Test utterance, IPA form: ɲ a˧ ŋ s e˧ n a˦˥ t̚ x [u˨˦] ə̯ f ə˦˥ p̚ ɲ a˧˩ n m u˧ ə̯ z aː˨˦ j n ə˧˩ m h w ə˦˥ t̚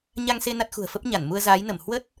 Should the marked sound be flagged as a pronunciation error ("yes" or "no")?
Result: yes